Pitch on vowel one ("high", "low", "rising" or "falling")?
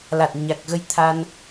low